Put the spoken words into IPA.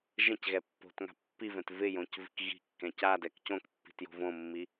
ʒɛ̃cɣɛ pːo̤tŋa̤ pːivɛ̃t vɪjõc vi̤kɣi̤kːɛ̃ cadɛk cõkpːi̤t jo̤võmːi

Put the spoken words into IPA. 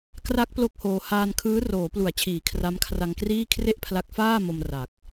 kra˦˥k̚ plo˥˩k̚hoː˧ haː˧nkʰɯː˦˥ roː˩˦plu˩˦a̯ t͡ɕʰiː˨˩ kʰra˦˥mkʰra˧ŋkriː˥˩ kʰre˥˩ʔpʰla˦˥k̚faː˥˩mo˧m ra˨˩k̚

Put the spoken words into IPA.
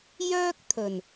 jœː˥k̚t̪ʰɵ˨˩n

